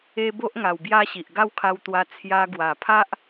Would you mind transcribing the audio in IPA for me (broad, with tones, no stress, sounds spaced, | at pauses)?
e˦ b o˦ ʔ ŋ a˨˩ w b j a˦ ɕ i˨ ʔ ɡ a˦ w kʰ a˧ w t̪ w a˧ t͡sʰ j a˧ ɡ w a˨˩ pʰ a˦ ʔ